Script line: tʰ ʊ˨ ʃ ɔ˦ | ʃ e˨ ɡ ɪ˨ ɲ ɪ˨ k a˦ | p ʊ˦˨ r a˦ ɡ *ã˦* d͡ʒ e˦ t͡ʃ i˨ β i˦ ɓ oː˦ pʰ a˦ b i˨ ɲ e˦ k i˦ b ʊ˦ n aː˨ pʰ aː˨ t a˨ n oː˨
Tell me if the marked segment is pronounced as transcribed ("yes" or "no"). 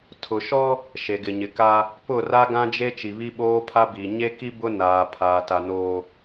yes